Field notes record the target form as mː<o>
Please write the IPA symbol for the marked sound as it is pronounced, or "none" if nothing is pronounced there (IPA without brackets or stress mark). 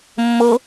o